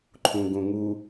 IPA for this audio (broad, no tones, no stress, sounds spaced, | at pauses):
ǃʰ ũ ɡ ũ ŋ u